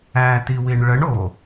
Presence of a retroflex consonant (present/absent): present